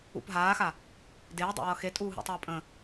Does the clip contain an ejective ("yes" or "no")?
yes